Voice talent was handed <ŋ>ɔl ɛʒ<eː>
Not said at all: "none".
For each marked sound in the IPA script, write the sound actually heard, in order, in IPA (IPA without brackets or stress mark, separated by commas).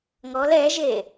ŋ, e